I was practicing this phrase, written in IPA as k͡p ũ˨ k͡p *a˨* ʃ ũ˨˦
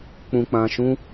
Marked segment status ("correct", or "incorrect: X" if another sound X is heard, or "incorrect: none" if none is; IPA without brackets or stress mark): incorrect: ã˨